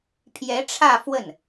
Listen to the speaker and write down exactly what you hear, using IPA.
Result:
pʰ j ɛ˧˥ ʈ͡ʂʰ ä˥˧ f w ə˥˩ n

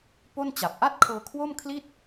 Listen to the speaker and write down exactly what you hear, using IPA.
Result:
p o˥˩ n t͡ɕ a˨˩ p̚ ʔ a˥˩ t̚ kʰ ɤː˧ kʰ w o˥˩ m kʰ l i˥˩ t̚

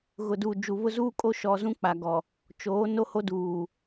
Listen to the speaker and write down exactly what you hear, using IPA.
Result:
ɣ ʊ˨ d uː˨ d͡ʒ u˨ β ʊ˦ z uː˦ kʼ o˦ ʃ ɔ˨ z ũ˦ k͡p a˨ ɡ ɔ˨ | t͡ʃ oː˨˦ n o˦ h o˦ d uː˨

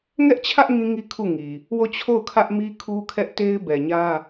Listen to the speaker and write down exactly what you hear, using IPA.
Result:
ŋ ɛ˦ ʔ t͡ɕʰ ä˦ ʔ ŋ ĩ˦ ŋ i˦ kʰ u˦˨ ŋ i˨ | w o˦˨ t͡ɕʰ o˦˨ ʊ̯ kʰ ä˦ ʔ m i˦ kʰ u˦ kʰ ɛ˦ ʔ t e˦ ɪ̯ b ɛ˨ ɲ ä˦

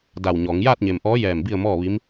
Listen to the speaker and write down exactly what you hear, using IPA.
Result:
d a˧˩ w ɲ ɔː˩˧ ŋ j aː˥˨ t̚ ɲ e˩ m ʔ ɔː˧˥ j ɛː˧˩ m b i˥˨ ə̯ m ɔː˥˨ ʋ i˧˥ m

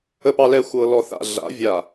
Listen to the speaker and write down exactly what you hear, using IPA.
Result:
ə˨ p ɑ˨ l ɛ˨ xʷ ɤ˨ l ɔ˨ θ a̰˨ ɮ a̰˨˦ vʲ a˨

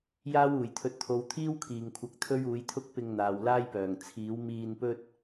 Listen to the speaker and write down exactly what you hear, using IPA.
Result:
j aː˥ w uː˨˩ j t̪ʰ ɵ˧ t̚ t̪ʰ o˨˧ w t̪ʰ iː˥ w kʰ iː˨˩ ŋ kʷʰ ɐ˨˥ k̚ t̪ʰ ɵ˥ ɥ uː˨˥ j t̪ʰ ʊ˥ k̚ p ɪ˧ ŋ n̪ aː˨ w l aː˥ j p œː˨˩ ŋ t͡sʰ iː˨˥ w m iː˧ n p ɵ˥ t̚

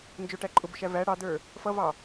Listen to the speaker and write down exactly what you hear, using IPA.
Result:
n d͡ʒ ʊ ʈ æ ǃʼ ʊ b ʊ ʃ æ v æ ɽ ɑ d ə˞ | f ʌ v ɑ

